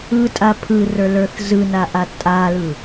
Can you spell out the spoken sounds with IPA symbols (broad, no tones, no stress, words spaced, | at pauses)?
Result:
ɯtʼa pʰɯrə˞lə˞θ zɯnaʔa tʼalɯ